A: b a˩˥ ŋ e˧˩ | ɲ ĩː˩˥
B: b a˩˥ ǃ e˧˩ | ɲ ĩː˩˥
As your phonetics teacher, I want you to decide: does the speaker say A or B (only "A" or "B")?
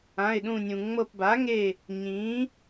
A